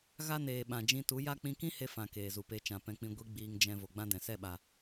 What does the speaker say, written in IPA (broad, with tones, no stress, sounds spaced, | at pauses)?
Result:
ɣ a˦ n eː˨ ɓ ã˨ d͡ʒ ĩ˧ t u˨˦ j a˦ k͡p ĩ˧ k ĩ˦ h e˧ f ã˨ k eː˨ z u˨ p e˧ t͡ʃ ã˨ p ɛ̃˧ k͡p ĩ˧ ɡʷ i˧ ɡ͡b iː˧ ŋ d͡ʒ ɛ̃˧ v o˨ ɡ͡b ã˦ d ɛ̃˨ s ɛ˦˨ ɓ a˨